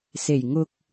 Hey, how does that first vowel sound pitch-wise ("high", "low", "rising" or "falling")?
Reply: low